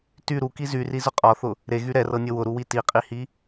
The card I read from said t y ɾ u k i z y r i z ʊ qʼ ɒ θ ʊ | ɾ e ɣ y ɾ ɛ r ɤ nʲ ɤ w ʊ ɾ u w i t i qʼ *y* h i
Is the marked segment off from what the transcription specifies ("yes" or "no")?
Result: yes